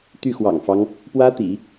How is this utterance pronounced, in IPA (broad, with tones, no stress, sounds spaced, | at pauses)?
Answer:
t̪ y˥˩ x w ɑ̰˨˩ ŋ f ɑ˦ ŋ | p w ä˥ t̪ ḭ˨˩˦